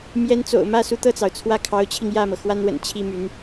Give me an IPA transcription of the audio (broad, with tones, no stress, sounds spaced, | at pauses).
m j ɛ˧˥ n t͡s o̰˨˩ ʊ̯ m ä˥˩ s u˧˥ t̪ ɤ˥˩ t͡s ɑ˩ ʊ̯ t͡sʰ w ä˥˩ kʰ ɑ˧˥ ʊ̯ t͡ɕʰ i˧ ŋ j ä˥˩ m ɤ˩ x w a˥ n w ə̰˨˩ n t͡ɕʰ i˥ m y˧˥ n